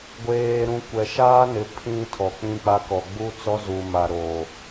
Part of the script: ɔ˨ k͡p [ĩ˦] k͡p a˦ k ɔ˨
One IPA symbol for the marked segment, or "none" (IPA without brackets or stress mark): ĩ˦